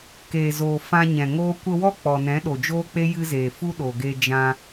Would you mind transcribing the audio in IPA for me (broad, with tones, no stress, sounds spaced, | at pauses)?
k eː˨ z oː˨ f ã˧ ɲ ɛ̃˨ ŋ oː˦ kʷ ə˧ w ɔ˦ k͡p ɔ˨ n ɛ̃˨˦ ɗ o˨ d͡ʒ oː˦ k͡p e˦ j ɨ˧ z eː˨ f u˦ ɗ o˨ ɡ e˧ d͡ʒ ã˧